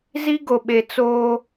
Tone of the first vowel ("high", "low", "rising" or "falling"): high